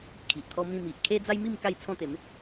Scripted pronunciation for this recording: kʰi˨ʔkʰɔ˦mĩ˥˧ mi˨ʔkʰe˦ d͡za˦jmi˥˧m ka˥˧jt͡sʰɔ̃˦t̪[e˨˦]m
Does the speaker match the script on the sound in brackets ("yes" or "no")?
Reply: yes